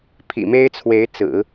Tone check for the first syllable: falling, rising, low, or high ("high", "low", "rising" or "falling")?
low